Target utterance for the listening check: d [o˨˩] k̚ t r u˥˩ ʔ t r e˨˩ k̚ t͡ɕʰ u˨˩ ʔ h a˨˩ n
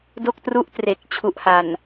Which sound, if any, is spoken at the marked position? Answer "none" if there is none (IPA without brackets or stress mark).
o˥˩